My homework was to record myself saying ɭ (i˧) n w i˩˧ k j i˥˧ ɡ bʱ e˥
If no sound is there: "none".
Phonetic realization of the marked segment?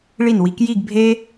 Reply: i˧˩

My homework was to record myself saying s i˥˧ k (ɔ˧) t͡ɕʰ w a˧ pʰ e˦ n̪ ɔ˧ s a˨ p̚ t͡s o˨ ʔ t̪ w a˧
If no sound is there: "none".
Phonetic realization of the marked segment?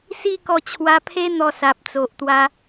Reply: ɔ˧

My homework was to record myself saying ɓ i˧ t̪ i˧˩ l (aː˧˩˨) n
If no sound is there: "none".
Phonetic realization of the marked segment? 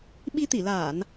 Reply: aː˧˩˨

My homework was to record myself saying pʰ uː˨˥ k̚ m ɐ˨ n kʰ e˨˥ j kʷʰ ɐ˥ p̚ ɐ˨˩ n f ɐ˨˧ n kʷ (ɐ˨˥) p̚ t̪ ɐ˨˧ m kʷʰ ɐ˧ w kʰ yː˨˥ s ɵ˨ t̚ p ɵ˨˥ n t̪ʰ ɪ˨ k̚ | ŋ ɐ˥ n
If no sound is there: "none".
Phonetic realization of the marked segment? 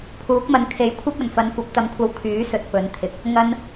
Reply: ɐ˨˥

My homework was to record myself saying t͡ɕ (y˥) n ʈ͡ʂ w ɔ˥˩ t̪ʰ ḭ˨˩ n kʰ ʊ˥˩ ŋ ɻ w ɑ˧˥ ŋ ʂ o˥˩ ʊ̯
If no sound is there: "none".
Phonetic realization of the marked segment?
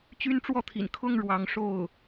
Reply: y˥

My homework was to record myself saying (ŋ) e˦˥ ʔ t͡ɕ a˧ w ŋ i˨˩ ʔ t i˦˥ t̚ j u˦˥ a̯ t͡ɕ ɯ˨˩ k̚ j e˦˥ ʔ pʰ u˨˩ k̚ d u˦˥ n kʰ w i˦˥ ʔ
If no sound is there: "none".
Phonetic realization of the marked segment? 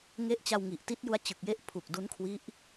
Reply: ŋ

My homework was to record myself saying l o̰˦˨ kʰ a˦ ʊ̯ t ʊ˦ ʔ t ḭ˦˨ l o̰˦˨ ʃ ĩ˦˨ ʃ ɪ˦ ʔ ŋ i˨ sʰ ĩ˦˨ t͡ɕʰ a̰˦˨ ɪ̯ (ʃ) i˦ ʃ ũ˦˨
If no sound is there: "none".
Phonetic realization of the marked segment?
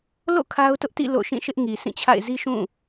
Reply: z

